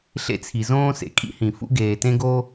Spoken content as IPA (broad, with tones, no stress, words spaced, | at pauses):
ɬḛ˥t͡sʰi˩ zõː˥sḛ˩ kʼḭ˥hĩ˩fṵ˥ ɡeː˩tẽ˥ɡo˥